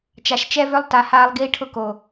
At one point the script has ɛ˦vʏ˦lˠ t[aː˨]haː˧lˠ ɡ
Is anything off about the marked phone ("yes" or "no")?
yes